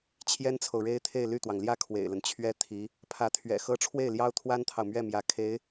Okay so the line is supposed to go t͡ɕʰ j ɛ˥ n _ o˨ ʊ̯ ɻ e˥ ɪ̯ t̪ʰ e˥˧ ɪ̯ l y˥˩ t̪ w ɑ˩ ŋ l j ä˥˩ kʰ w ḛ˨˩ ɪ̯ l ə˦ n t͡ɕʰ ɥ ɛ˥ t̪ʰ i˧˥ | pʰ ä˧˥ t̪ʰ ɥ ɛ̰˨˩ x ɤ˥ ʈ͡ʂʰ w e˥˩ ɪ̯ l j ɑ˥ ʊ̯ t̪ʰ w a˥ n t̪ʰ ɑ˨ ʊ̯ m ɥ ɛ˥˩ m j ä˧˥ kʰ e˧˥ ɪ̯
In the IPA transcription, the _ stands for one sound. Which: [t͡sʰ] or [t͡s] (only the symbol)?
t͡sʰ